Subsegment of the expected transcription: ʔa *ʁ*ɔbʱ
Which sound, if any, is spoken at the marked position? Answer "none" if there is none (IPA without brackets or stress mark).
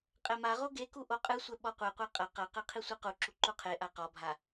q